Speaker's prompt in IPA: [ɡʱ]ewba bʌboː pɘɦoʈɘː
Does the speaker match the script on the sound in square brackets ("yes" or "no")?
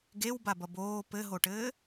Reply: no